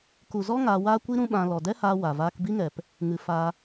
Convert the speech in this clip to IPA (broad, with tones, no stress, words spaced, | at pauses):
ku˨zɔ˦ ŋaː˧waː˦kʷi˦ ɾũ˦ɓã˧ lɔ˨dɛ˦haː˧ wa˨vaː˦k bi˦ŋɛ˨p | ŋɨ˨ fa˧